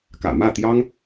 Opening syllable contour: low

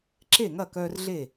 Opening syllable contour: falling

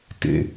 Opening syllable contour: low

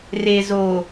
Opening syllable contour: low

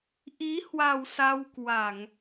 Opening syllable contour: rising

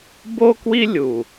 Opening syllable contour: high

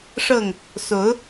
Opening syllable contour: falling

